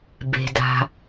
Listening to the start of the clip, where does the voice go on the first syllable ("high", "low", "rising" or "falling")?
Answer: low